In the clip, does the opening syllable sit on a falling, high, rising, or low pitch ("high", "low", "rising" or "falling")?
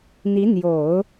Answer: rising